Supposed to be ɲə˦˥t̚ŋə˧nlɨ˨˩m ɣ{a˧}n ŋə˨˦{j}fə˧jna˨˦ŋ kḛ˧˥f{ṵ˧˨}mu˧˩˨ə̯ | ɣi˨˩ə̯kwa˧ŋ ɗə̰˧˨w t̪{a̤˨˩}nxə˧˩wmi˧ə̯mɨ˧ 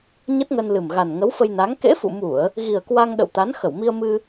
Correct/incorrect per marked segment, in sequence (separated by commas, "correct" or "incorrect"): incorrect, incorrect, correct, incorrect